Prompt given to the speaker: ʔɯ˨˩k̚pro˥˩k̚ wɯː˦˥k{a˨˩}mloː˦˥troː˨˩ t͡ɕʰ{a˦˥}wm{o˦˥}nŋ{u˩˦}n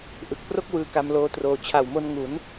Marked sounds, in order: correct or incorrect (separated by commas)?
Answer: incorrect, incorrect, incorrect, correct